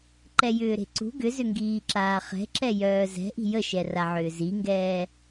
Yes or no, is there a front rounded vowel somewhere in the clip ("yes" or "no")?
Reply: yes